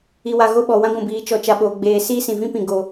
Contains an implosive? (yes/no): yes